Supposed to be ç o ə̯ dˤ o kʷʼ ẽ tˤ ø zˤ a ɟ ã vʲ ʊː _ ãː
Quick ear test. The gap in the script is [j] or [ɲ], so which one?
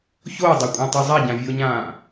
ɲ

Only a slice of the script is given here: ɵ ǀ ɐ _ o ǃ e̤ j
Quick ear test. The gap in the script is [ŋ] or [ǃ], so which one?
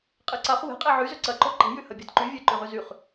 ǃ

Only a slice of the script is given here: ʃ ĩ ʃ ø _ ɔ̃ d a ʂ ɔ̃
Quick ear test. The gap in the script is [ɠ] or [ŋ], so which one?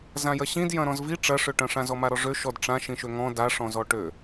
ŋ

